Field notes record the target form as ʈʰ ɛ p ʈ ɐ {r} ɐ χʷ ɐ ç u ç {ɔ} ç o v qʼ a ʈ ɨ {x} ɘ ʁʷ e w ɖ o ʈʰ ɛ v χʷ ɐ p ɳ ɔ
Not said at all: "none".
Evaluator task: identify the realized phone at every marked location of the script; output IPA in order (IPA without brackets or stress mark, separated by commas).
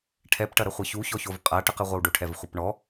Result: ɾ, ɔ, q